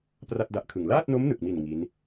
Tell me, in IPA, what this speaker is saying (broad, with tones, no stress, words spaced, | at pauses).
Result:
pra˥˩t̚da˦˥ʔkʰɯ˨˩ŋ laː˥˩t̚no˦˥mnɯ˨˩k̚mi˨˩n ŋi˦˥n